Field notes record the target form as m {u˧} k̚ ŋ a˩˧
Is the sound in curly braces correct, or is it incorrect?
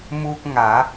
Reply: correct